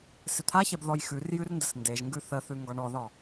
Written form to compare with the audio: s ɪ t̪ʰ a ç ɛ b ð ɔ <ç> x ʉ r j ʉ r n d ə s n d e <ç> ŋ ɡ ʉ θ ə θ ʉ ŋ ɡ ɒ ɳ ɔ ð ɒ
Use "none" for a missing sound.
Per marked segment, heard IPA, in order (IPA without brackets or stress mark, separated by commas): j, ʒ